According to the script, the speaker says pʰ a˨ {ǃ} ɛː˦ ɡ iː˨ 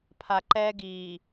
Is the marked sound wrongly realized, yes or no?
no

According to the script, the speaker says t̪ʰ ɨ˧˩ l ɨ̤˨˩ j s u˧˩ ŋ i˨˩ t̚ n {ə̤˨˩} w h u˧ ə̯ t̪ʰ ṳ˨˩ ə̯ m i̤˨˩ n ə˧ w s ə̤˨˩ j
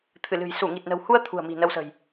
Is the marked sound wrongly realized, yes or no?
no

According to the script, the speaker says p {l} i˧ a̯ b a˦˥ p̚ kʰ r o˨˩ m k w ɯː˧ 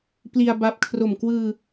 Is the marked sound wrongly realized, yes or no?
no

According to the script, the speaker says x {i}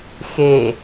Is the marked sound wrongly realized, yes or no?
yes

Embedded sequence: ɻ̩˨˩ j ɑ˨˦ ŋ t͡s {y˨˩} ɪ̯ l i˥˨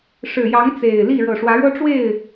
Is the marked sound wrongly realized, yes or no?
yes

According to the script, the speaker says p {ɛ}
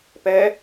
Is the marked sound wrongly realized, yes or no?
no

